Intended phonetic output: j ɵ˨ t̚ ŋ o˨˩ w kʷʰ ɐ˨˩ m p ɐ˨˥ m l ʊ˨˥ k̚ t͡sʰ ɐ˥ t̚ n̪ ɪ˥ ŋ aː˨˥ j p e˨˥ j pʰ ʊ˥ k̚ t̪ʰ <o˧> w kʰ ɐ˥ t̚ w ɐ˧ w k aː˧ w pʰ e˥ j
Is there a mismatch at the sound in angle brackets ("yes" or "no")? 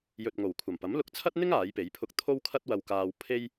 yes